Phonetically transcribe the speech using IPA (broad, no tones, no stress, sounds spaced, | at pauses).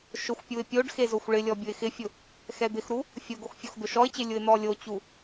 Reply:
ʃ ʊ xʷ pʲ u ɪ̯ pʲ o ɖ x e z o xʷ ɭ ɪ lʲ ɔ bʲ ʊ ɪ̯ x ɪ fʲ ʊ | x ɛ d̪ ɪ x ɾ u | fʲ ʊ ɡ o x fʲ o x d̪ ʊ ʃ ɔ ɪ̯ t͡ɕ ɪ lʲ ʊ ɪ̯ n̪ ɔ lʲ o t͡ɕ u